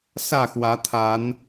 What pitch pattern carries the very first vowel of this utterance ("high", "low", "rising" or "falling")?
falling